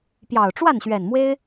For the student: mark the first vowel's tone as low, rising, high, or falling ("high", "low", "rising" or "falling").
low